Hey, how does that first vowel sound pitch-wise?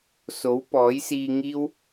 rising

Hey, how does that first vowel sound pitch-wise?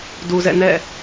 low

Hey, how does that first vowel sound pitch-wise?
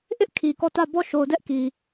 high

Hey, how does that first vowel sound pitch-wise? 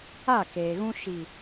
falling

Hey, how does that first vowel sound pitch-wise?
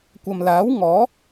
low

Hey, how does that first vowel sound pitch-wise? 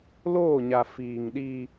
falling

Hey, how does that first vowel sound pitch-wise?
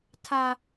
high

